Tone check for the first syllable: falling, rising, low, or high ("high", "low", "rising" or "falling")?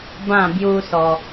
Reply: falling